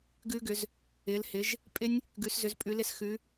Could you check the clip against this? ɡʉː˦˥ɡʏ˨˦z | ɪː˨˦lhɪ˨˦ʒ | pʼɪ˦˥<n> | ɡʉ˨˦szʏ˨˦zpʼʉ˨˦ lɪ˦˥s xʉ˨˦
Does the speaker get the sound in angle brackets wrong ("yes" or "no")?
yes